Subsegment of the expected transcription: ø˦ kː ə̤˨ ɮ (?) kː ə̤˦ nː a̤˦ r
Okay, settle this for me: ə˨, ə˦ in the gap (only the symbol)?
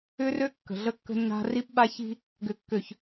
ə˦